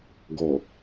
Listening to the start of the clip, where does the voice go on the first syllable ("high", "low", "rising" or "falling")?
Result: low